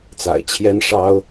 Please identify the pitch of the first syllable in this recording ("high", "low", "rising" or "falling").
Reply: low